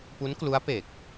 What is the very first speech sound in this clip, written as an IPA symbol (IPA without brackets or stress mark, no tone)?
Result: p